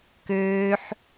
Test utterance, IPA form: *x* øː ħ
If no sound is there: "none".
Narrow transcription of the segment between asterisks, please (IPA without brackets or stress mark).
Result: k